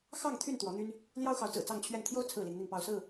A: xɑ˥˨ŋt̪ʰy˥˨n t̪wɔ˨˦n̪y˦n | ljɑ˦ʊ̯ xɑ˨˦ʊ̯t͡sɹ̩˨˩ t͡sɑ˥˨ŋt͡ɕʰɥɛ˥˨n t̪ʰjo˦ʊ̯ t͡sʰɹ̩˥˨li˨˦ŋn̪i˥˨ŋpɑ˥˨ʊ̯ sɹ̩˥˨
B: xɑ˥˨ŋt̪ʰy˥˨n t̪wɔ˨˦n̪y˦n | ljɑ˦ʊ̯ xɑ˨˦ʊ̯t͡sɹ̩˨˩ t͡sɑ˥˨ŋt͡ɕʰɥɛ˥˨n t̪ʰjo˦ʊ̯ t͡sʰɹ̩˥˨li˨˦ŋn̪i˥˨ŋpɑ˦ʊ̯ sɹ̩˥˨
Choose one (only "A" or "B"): A